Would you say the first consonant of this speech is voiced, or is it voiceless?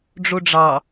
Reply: voiced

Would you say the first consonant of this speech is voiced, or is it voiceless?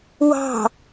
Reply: voiced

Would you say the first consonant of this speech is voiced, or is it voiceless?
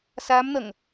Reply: voiceless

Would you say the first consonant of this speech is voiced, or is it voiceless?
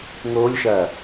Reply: voiced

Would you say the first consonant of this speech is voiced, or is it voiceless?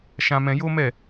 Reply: voiceless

